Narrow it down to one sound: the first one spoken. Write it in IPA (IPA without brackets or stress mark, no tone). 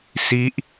s